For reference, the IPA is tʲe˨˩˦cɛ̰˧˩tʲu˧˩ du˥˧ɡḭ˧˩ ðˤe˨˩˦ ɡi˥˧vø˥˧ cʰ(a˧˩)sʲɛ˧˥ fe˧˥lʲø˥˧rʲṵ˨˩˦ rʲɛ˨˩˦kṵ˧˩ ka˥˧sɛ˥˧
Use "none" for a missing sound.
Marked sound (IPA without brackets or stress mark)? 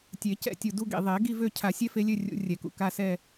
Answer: a˨˩˦